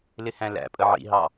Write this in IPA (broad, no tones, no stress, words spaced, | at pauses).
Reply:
lɪhæ̃læ̰pʼə ʕḭɦɑ